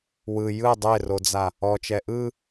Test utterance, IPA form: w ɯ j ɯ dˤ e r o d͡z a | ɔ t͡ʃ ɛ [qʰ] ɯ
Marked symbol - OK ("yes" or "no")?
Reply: no